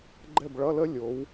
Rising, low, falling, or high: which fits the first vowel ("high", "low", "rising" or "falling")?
falling